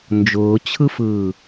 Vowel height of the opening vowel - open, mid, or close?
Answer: close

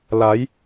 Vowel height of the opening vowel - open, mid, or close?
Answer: open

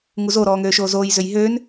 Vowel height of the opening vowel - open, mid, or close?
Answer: close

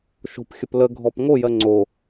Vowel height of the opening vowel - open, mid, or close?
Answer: mid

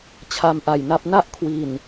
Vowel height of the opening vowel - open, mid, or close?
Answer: open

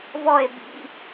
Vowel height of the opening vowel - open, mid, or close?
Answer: mid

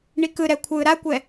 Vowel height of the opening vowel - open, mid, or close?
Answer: close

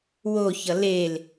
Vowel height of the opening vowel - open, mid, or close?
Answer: mid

